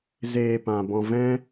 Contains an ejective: no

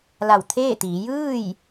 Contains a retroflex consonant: no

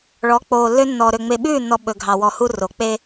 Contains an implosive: yes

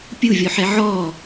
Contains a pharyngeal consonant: yes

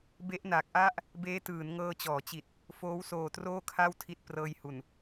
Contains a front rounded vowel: no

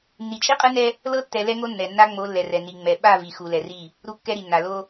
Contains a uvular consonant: yes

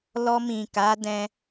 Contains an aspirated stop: no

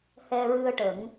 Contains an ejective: no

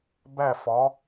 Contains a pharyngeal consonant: no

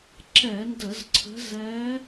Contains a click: yes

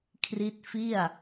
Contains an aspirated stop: yes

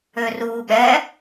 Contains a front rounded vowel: yes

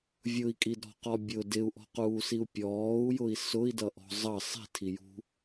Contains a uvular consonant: yes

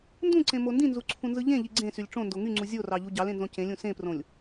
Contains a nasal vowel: yes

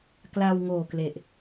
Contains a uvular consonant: no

